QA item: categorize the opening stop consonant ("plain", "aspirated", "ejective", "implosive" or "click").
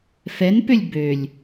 plain